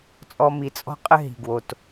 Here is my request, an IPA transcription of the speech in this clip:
t͡sʼ ɔ˧ m i˨˩˦ t͡sʼ ɔ̤˥ qʼ ɘ˥ ɦ i̤˨˩ ɡ w o˨˩ t

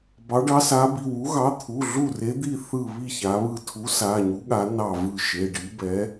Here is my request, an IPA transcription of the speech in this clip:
b ɑ˨˥ ɖ ɑ˨˥ s a˨˥ b i˩˧˩ w u˨˥ ɣ ɑ˨˥ t̪ʰ u˩˧˩ ɮ u˥˨ r e˨˥ d̪ i˥˨ θ ɯ˥˨ β i˥˨ ç a˨˥ β ɯ˥˨ tʰ u˨˥ s a˩˧˩ ɲ u˨˥ ɠ a˨˥ n ɑ˥˨ v ɯ˥˨ ʃ e˩˧˩ ɖ i˨˥ b ɛ˨˥

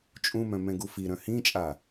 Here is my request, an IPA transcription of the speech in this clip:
t͡ʃʼ ũ m œ̃ m ɛ̃ ɡ u f i ɾ œ̃ h ĩ t͡ʃʼ a

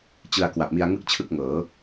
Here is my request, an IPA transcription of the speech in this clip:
t͡ɕ ɯ˧ a̯ k w a˨˩ p̚ m i˧ a̯ ŋ ɯ˥˩ k̚ t͡ɕʰ ɯ˥˩ k̚ ŋ ɤː˩˦

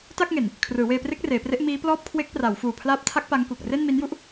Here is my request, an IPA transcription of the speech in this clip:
t a˥˩ k̚ ŋ e˨˩ n | kʰ r ɯː˩˦ w eː˧ p r e˦˥ k̚ r eː˩˦ p r e˦˥ ʔ m iː˦˥ p l ɔː˥˩ p̚ kʰ w e˦˥ k̚ p r a˩˦ w f uː˨˩ pʰ l aː˦˥ p̚ tʰ a˦˥ k̚ p a˦˥ ŋ k u˨˩ k̚ r e˥˩ n m i˦˥ n j u˥˩ ʔ

